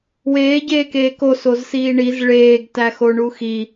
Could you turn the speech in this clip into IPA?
weː ɟeːkeːko sozsiːɳiz ɭeːɡ tæxoɳuxi

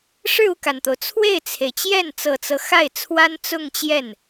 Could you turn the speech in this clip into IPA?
ʂɻ̩˥˧u˥˩ka˩nt̪o˩ʊ̯ t͡sʰwe˥˩ɪ̯t͡sʰe˩ɪ̯t͡ɕjɛ˥˩n t͡sɤ˨˩t͡sɤ˦xa˥˩ɪ̯t͡sʰwa˥n t͡sʊ˥˧ŋt͡ɕjɛ˥˩n

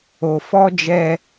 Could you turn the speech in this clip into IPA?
o˨fɔ˦d͡ʒɛ˦

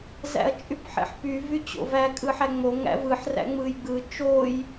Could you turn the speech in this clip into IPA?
zæ̰ɐ̯t͡ʃʼypħḛħpy vyt͡ɕo̰væ kʼɯħæŋ͡mo ŋæ̰vɯħ ræ̰ŋ͡mɯjɡ͡bɯ t͡ʃoj

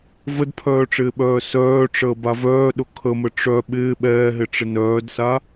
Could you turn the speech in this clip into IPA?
vədpʰœːʈ͡ʂɪːɓœː sœːʈ͡ʂəːba vœːɗʊ kʰəmə ʈ͡ʂœ ɓɪː ɓɛːɦɪʈ͡ʂɪ nœːdsa

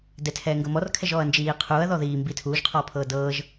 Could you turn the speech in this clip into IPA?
dɛtʰɛːŋɡɤ mɔrkʰɛʒɔːɐ̯ nd͡ʒiː qʰuːɐ̯ðɔ ðiːmbi tʰuːʒqʰɔːpʰɤː dɤːʒ

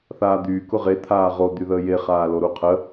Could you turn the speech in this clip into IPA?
θaːd̪yː kʊʁe t̪ʰaːʁo d̪yðəːje χaːloɾuqʰə

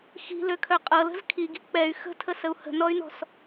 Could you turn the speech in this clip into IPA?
xi̤løkʰœ qʼɤlə̤z kʰiɡi̤ k͡pɛy̯ xə̤tʰəsəu̯ hə̤nɔy̯nɔ̤s

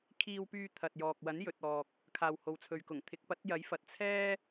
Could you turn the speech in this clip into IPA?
kʰiː˧wpyː˧ t̪ʰɐ˨t̚jɔː˨k̚ wɐ˨˥njɵ˨t̚ɔː˨k̚ | kʰaː˨who˨wt͡sʰɵ˨ɥkʊ˨˩ŋ t̪ʰɪ˨˥k̚ pɐ˨˥t̚jɐ˨˥jfɐ˨t̚ t͡sʰɛː˥

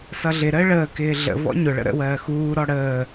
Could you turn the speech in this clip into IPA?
sʌɮɪɾəː ɭəːkɪː ɮə̰ vɔ̰ɲʊɭə̰ ɾə̰wɜː xuːɾɔ ɽəː

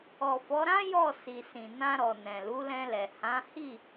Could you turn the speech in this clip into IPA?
ɔ˨fɔ˨˦ɾã˦ jɔ˦˨ si˨sĩ˨ nã˧ɾɔ˨ nɛ̃˨lu˨˦lɛ̃˧lɛ˨ hã˨˦hi˦˨

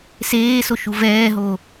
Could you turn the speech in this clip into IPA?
seːsoʃu vɛːɦo

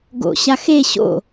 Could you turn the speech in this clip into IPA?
ɡo̰ɕa xe ɕo̰

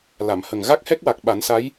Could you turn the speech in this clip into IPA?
la˨˩˨mhə˨˩ŋ ɣa˦˥k̚hɛ˦˥k̚wa˨˩k̚ ɓa˨˩˦nsa˧˥j

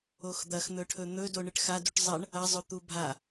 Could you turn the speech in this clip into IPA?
oxd̪ɐxn̪ɵʈʰɵ n̪ɵdo ɳɨʈxaduʈ zˤɐɳ | ɐzˤɵ t̪ubʱa

